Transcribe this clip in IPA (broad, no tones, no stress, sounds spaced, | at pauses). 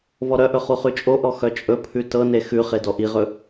v ɔ ɾ œ ʔ ɵ χ u χ ʉ t͡ʃʼ o ʔ ɔ x œ t͡ʃʼ ɵ pʰ ʉ t ɤ n e x ʉ χ e d ɔ ʔ i ʁ ɵ